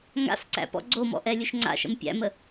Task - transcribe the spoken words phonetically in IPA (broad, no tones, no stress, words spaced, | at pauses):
ŋa̰sǀæ̰ pɔ̰ɡ͡ǀomɔ̰ ʔɛlʲɵʃŋ͡ǀa̰ʃə̰m pʲæ̰mə